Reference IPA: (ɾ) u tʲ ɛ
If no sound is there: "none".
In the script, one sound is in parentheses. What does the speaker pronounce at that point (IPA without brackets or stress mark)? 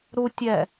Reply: ɾ